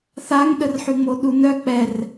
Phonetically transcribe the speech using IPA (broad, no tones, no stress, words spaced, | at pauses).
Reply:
θaŋɗərħy ŋ͡moɗunœ k͡pɛr